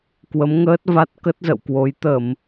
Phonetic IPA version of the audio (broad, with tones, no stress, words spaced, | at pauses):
kwə˨˦mŋəː˦˥t̚va˦˥t̚ kə˦˥t̚zə̰˧˨wkwo˨˦j t̪ə˧˩˨m